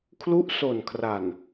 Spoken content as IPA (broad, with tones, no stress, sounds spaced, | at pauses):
kʰ l u˦˥ ʔ s o˨˩ n kʰ r a˨˩ n